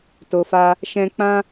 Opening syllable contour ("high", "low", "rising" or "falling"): low